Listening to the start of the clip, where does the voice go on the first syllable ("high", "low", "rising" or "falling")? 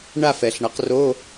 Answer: falling